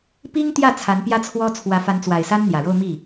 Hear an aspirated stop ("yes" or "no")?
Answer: yes